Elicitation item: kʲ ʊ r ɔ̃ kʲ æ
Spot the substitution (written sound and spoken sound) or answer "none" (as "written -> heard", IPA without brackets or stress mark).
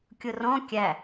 none